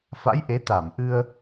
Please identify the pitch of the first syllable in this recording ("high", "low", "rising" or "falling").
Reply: rising